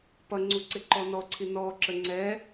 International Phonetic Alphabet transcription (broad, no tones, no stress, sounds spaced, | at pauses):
p ʌ ŋ͡ǀ u ǀ ɪ ǃ ɔ n ɔ ǀʰ i n ɔ ǁ ə ŋ͡ǀ ɛ